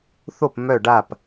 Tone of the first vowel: falling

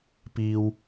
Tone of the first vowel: low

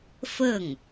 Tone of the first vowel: falling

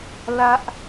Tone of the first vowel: high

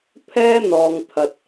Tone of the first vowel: high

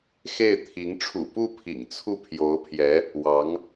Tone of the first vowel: falling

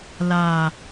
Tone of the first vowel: low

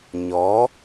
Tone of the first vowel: rising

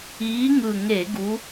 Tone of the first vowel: rising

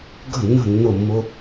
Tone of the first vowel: falling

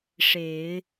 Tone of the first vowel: low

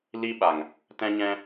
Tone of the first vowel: high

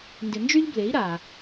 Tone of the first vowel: low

